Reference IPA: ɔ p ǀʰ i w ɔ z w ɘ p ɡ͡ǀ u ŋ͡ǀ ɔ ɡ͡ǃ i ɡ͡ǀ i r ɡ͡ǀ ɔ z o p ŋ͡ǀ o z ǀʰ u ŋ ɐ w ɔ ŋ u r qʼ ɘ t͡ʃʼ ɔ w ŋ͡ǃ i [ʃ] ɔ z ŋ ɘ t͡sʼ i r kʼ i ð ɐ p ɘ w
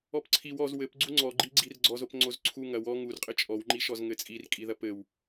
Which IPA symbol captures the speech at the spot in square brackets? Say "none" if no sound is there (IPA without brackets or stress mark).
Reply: ʃ